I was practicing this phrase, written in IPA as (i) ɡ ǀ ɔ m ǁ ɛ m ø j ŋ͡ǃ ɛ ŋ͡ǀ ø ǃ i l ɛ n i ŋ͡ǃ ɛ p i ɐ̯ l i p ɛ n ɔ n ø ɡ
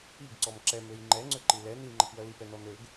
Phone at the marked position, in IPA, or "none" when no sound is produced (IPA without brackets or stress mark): i